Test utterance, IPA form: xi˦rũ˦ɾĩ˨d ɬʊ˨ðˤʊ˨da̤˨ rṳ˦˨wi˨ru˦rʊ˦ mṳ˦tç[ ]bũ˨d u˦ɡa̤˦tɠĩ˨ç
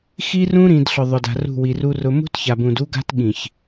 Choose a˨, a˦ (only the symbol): a˨